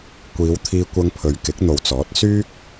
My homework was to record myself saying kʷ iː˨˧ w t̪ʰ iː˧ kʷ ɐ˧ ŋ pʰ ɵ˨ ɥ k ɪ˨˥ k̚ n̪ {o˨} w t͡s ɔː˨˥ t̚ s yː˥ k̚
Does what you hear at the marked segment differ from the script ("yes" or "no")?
no